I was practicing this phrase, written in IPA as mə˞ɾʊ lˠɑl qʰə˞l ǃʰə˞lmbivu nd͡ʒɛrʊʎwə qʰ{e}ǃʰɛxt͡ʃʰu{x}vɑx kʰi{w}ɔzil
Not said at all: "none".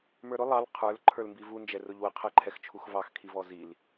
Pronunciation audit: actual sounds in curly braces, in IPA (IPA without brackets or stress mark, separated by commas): ɛ, x, v